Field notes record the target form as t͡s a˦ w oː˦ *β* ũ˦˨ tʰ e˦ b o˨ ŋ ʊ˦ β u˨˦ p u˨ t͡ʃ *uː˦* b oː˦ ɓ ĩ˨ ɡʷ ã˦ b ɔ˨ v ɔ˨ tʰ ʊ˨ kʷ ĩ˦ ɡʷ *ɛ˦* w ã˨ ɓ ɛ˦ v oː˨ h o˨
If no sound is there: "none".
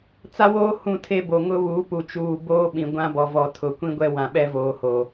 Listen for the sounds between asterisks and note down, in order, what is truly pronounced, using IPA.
h, uː˨, ɛ˦

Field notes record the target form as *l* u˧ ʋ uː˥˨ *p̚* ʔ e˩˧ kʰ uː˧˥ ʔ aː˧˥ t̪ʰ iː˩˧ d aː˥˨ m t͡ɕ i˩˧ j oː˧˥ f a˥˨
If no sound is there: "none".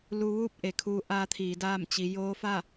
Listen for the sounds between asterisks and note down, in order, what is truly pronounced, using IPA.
l, p̚

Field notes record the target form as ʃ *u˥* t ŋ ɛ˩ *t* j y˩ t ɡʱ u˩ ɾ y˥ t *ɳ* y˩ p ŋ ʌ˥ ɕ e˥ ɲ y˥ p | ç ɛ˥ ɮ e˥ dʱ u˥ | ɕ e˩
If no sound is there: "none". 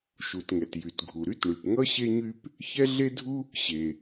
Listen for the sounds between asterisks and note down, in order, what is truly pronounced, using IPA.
u˩, t, ɳ

